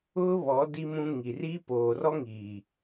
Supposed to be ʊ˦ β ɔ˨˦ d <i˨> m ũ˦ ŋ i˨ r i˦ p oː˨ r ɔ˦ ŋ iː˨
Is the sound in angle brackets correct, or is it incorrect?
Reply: incorrect